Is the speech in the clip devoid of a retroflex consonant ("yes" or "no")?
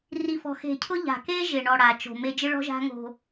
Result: no